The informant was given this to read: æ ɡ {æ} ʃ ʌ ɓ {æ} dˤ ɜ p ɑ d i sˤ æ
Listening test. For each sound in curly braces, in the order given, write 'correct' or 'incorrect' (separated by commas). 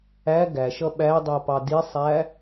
correct, correct